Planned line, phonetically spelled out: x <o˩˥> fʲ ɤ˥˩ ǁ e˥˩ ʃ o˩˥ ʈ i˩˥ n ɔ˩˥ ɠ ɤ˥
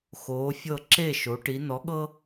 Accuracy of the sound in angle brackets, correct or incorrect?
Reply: incorrect